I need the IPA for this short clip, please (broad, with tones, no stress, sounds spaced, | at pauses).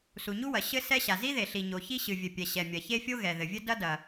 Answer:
s u˩ ɲ u˥ w ɐ˩ ɕ ɘ˥ s ɛ˥ ɕ a˩ z i˥ ð e˩ ɬ i˩ ɲ o˩ ç i˥ ɕ ɨ˩ vʲ ɘ˩ pʲ ɛ˩ ɕ ɛ˩ mʲ ɐ˩ ç e˥ fʲ o˥ ɣ ɛ˩ ð ɘ˩ vʲ ɘ˥ d ɐ˥ d ɐ˩